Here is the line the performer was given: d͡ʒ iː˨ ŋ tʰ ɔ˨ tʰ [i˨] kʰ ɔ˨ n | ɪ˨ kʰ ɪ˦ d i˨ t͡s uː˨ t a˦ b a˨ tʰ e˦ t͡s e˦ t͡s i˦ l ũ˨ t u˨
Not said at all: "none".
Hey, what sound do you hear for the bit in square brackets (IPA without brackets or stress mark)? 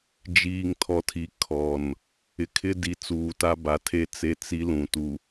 i˨